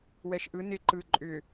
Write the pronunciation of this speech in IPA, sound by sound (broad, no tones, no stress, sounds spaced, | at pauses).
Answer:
w ɛ ʃ ʔ ɯ n ɪ ǃ ɯ ǃʼ ʏ